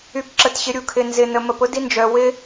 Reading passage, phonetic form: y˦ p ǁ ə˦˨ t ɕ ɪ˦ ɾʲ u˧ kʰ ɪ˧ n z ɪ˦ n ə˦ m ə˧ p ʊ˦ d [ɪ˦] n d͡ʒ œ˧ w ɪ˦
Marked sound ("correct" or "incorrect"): incorrect